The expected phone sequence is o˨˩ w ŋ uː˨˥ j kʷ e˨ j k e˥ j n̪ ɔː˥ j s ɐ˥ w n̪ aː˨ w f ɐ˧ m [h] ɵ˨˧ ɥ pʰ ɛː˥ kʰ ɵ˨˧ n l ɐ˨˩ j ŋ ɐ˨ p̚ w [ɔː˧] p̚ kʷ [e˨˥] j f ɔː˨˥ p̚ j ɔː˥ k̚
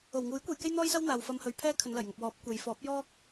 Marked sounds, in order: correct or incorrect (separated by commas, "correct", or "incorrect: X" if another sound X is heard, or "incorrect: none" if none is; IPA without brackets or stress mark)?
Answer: correct, incorrect: ɔː˨˥, incorrect: e˨˧